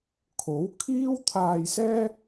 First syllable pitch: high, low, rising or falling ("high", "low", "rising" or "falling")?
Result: rising